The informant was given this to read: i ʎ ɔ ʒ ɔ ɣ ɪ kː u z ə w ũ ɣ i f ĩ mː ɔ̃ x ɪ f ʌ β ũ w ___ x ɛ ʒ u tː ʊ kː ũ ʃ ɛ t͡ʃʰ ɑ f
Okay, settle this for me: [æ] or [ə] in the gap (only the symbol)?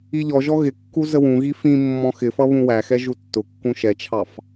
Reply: æ